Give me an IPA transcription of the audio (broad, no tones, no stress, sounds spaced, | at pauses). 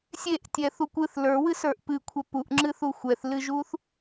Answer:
sʲ e ʔ tʲ ɛ θ u kʷ ɨ θ l ə˞ w ɨ s ə˞ ʔ p ɨ kʷʰ ɛ p u ʔ ŋ͡ǁ ɨ θ u xʷ ɛ θ l ɨ ʒ u θ